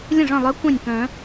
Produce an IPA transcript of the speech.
lʲ ə̃˥˩ ʐ œ̃˥˩ lˠ œ˧˥ kʷ œ̃˥˩ nʲ k œ̃˨˩˦

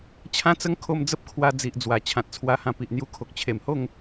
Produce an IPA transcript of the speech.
t͡ɕʰ ã˦ t͡s ə˦ ŋ kʰ o˧ m d͡z ə˦ p̚ kʰ w a˧ d͡z i˨ ʔ d͡z w a˨˩ t͡ɕʰ ã˨ t̚ t͡sʰ w a˧ h ã˧ p i˨ ʔ n̪ j u˧ kʰ o˨ k̚ t͡ɕʰ e˨˩ m h o˥˧ ŋ

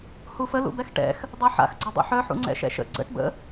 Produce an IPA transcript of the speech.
h u f ə l ṵ b ɛ x ʈ ɛ̰ x | dˤ ɤ ħ a̰ x ɡ͡ǀ ɔ dˤ ṵ ħ œ ħ ṵ ŋ͡ǀ ɛ̰ ʃ ɛ̰ ʃ ə̰ ɡ͡ǀ ə̰ ʈ b ə̰

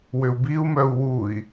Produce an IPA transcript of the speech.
w ʏ u̯ b i u̯ m œ u̯ w u i̯

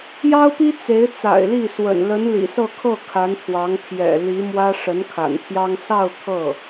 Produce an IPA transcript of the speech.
j ɑ˥ ʊ̯ p i˥ t͡s e˧˥ ɪ̯ t͡s a̰˨˩ ɪ̯ l i˥˩ s w ə̰˨˩ n l ə˧˥ n l ḭ˨˩ s ɤ˥˧ kʰ ɤ˥˩ kʰ a˧˥ n pʰ w ɑ˧˥ ŋ pʰ j ɛ̰˨˩ l i˧˥ m w ä˥ ʂ ə˧˥ n kʰ a̰˨˩ n t̪ʰ j ɑ˥ ŋ s ɑ˥˧ ʊ̯ t̪ʰ ɤ˥˩

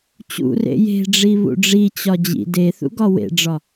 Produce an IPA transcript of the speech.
t͡ɕ ṵ r ḛ j e̤ ɖ͡ʐ i β ṵ ɖ͡ʐ i t͡ɕ ɒ d͡ʑ ḭ d e θ ṵ ɡ ɒ w ḛ ɖ͡ʐ ɒ

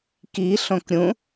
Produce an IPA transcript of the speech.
k i ɬ õ k ɾʲ ũ

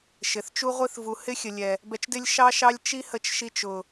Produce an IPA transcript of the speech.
ʃ ɪ˨ θ t͡ʃ u˦ ʁʷ i˧ θ v u˨ h ɪ˦ xʲ ə˨ lʲ ɛ˨ | b ɛ˧ t͡ʃ d ɪ˦ lʲ ʃ ɑ˦ ʃ ɑ˦ lʲ t͡ʃ i˦ h ə˧ t͡ʃ ʃ i˧ t͡ʃ ʊ˨

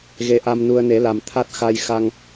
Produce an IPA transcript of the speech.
ɣ e˧ ʔ a˧ m n u˧ ə̯ n e˨˩˦ l a˨˩ m t̪ʰ a˦˥ t̚ x a˧ j x a˧ ŋ

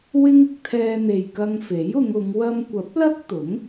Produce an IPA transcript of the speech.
w ɪ˥ ŋ ɪ˧ k̚ t̪ʰ ɛː˧ n̪ e˨ j k ɐ˧ ŋ f e˨˥ j ʊ˨˧ ŋ ʊ˨˧ ŋ w ɐ˧ m kʷ ɐ˨˥ p̚ l ɐ˥ k̚ t̪ ʊ˨˥ ŋ

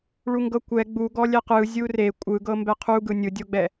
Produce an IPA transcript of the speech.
ɭ u ŋ ɡ ɤ kʷ ɛ ɡ͡b u ɡ ɔ lʲ ɛ q ɯ zʲ u r e kʷʼ ɯ ɡ ɤ m b ɛ qʰ u ɡ ɯ nʲ ɯ dʲ o ɡ͡b ɛ

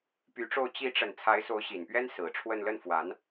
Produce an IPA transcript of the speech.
p y˧˥ ʈ͡ʂ o˥˩ ʊ̯ t͡ɕ i˧˥ ʈ͡ʂ ə˨˩ n t͡sʰ a˧˥ ɪ̯ s o˧˥ ʊ̯ ɕ i˨˩ n p ɥ ɛ˥ n s ɹ̩˨˩ ʈ͡ʂʰ w ə˥˧ n l ə˥˩ n f w a˧˥ n

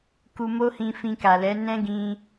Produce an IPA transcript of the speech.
k u˧ m o˦ h ĩ˧ f ĩ˧ k a˨ l ɛ˨˦ n ɛ̃˦ ɡ ĩ˧

